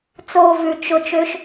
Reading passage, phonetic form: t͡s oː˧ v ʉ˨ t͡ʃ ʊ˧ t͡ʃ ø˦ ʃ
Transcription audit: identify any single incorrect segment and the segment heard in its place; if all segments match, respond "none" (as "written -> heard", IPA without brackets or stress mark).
none